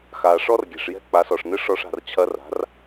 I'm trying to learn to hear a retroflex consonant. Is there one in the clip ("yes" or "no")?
yes